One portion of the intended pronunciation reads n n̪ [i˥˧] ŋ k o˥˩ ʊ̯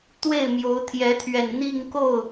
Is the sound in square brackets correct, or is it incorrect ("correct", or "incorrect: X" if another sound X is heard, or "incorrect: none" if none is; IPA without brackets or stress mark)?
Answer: correct